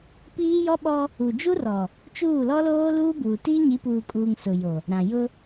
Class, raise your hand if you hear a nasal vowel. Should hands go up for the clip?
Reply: yes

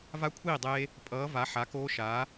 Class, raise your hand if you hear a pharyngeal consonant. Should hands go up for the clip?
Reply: yes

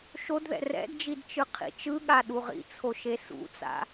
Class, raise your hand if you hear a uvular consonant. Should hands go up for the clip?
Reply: yes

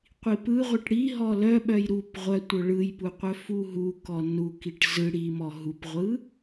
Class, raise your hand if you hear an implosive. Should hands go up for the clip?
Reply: yes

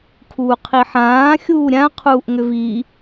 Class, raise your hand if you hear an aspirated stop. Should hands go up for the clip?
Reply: yes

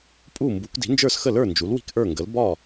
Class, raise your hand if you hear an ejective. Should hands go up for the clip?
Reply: yes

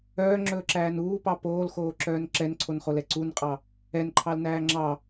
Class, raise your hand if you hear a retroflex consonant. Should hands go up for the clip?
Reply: no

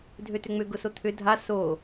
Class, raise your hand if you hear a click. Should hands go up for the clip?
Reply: no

